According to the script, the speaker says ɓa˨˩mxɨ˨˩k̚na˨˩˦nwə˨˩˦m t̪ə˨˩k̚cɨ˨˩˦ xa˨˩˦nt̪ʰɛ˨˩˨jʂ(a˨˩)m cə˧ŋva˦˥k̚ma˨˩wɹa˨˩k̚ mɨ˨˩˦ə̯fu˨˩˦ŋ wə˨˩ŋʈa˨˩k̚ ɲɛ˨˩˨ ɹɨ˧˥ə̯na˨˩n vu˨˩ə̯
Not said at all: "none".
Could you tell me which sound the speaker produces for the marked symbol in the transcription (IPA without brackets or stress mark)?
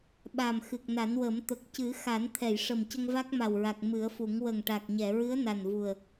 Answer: ə˨˩